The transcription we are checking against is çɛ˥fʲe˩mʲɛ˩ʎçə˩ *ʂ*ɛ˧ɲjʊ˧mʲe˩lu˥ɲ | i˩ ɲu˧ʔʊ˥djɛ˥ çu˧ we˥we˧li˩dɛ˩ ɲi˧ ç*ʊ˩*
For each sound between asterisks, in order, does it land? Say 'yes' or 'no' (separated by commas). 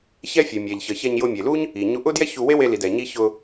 no, no